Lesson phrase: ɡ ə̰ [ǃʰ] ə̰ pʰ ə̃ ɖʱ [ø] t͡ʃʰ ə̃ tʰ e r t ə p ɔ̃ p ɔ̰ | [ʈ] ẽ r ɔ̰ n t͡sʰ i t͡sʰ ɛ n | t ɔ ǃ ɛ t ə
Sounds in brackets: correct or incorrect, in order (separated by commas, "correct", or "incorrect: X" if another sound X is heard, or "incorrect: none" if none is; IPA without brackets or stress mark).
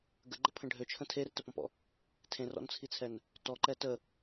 incorrect: ɡ͡ǃ, correct, incorrect: tʰ